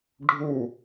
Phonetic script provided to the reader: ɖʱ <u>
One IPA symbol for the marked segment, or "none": u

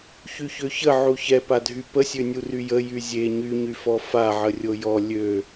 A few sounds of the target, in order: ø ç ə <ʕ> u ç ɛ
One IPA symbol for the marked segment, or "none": ʕ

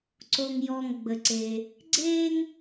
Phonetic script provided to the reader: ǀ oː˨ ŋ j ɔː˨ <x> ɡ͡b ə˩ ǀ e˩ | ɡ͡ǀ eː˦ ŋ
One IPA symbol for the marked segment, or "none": ŋ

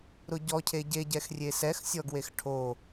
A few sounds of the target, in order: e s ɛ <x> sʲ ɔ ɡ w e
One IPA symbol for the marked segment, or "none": x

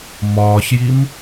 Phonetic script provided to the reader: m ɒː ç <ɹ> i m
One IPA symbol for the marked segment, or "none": j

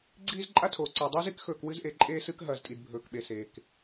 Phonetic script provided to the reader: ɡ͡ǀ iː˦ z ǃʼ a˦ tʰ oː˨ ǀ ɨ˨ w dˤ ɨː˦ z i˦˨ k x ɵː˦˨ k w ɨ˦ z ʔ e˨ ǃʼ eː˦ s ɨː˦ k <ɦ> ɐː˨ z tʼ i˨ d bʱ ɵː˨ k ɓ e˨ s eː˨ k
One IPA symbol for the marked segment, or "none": ɦ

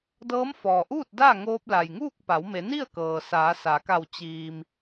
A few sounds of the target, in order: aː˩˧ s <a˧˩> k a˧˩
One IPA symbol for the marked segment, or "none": a˩˧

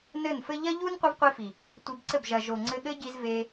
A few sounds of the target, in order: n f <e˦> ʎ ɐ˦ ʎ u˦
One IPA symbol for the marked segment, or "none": ɘ˦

